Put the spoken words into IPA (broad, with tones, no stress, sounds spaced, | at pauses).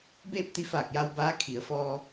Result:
b eː˥˨ p̚ t̪ i˧˥ f aː˧˩ k̚ j a˧ w b aː˧˥ kʰ i˩˧ ə̯ f ɔː˧